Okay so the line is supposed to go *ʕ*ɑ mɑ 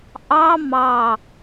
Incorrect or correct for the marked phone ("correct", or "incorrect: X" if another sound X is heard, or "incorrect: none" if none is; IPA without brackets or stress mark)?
incorrect: ʔ